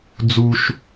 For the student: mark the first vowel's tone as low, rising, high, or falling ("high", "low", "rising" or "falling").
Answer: high